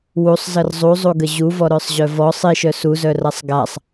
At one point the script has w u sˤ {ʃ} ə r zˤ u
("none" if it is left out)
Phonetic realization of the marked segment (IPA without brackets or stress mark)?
z